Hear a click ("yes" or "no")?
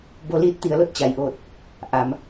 no